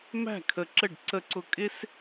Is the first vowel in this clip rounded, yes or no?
no